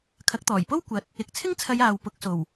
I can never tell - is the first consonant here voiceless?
yes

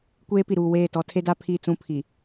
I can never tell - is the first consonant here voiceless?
yes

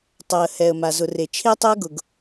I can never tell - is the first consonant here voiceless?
yes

